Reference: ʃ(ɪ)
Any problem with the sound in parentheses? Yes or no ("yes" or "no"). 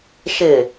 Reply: no